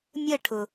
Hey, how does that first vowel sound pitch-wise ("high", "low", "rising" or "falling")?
falling